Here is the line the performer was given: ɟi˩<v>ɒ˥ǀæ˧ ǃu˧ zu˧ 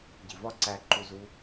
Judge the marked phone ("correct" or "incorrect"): correct